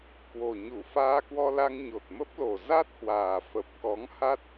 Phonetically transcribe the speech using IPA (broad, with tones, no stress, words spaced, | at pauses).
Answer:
kwo˨˩ɲu˧˩ faː˧kwɔ˧la˧ŋ ɲo˨˩t̚mə˦˥p̚lo˨˩ za˦˥t̚hwaː˨˩ fə˨˩p̚kɔ˨˦ŋ ha˦˥t̚